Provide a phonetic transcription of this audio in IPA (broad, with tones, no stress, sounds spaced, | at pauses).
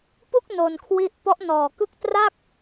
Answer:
p u˥˩ k̚ n o˧ n kʰ w i˥˩ ʔ p ɔ˦˥ ʔ n ɔː˨˩ k ɯ˥˩ k̚ t r a˥˩ k̚